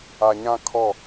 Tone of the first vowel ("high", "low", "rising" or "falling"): low